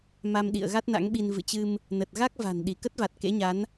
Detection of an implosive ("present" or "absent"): present